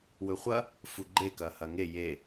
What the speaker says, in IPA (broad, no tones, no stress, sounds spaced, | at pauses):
w ɵ χʷ ɐ | f u ɡ͡ǃ e k ɐ h ɐ ŋ e j e